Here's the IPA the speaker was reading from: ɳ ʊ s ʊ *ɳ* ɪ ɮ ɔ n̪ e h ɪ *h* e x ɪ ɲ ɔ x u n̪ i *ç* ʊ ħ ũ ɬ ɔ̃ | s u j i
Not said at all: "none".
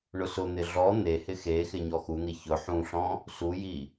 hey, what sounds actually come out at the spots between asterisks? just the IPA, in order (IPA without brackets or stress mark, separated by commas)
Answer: n̪, x, ç